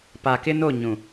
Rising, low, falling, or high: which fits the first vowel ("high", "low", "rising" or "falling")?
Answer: low